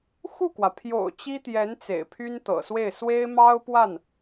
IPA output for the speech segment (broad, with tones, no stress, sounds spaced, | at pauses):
x u˥˩ k w ä˩ pʰ j o̰˨˩ ʊ̯ t͡ɕ i˥ t̪ j ɛ˧˥ n t͡s ḛ˨˩ ɪ̯ pʰ y˥ n t̪ ɤ̰˨˩ s w e˥˩ ɪ̯ s w e˥ ɪ̯ m ɑ˥ ʊ̯ p w a˥˩ n